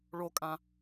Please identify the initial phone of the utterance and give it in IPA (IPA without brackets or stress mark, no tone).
ɭ